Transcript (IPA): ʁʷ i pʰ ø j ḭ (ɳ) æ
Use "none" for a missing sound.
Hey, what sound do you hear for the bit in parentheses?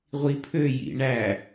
ɳ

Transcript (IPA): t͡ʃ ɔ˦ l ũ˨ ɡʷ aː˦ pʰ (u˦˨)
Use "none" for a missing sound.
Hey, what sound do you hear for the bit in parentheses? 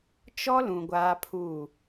u˦˨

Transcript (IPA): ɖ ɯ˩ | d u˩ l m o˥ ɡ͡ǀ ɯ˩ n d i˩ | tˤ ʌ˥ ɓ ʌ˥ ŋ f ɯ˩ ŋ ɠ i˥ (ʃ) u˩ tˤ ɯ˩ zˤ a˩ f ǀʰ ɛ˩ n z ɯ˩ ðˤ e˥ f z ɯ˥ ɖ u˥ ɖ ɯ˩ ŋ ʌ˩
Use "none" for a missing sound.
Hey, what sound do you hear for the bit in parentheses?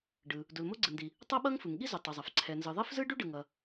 z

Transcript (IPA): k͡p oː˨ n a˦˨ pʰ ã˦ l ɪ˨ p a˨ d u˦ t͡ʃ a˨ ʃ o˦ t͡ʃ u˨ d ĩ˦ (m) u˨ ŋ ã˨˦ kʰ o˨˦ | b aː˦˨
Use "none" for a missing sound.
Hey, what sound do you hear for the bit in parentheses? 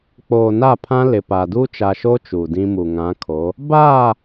m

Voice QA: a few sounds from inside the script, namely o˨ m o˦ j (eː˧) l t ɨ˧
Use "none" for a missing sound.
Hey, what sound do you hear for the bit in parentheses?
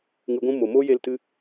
e˧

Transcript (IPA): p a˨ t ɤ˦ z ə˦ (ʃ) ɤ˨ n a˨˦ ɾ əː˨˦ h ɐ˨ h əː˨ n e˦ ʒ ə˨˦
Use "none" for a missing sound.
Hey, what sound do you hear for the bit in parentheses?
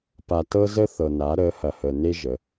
θ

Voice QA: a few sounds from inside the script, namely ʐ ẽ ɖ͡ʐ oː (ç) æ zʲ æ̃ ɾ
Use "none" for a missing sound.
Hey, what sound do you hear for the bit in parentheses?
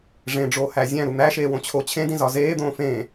h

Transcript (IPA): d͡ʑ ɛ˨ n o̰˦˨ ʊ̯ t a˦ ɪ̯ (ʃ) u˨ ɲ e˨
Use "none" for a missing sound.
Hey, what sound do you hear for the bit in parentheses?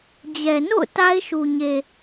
ʃ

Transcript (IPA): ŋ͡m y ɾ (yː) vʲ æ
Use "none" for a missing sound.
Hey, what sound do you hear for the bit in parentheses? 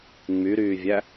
yː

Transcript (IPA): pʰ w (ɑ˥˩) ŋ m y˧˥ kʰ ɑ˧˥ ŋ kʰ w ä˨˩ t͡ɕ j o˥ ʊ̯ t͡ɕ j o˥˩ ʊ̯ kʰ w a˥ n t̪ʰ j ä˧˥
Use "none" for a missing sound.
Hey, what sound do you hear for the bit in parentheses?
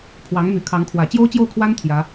ɑ˧˥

